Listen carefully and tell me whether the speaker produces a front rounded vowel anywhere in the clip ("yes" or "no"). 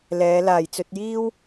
no